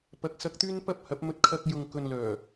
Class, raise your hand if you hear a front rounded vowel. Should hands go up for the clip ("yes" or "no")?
yes